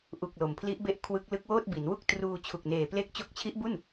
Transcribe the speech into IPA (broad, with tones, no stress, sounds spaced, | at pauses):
ʔ u˨˩ k̚ l o˩˦ m pʰ l i˦˥ ʔ b e˥˩ ʔ kʰ w ɯ˦˥ k̚ l ɯ˦˥ k̚ w oː˥˩ t̚ b i˩˦ n w u˥˩ k̚ t r uː˧ t͡ɕʰ u˨˩ k̚ n eː˨˩ p l e˥˩ k̚ t͡ɕ o˦˥ k̚ t͡ɕʰ i˦˥ ʔ b u˥˩ n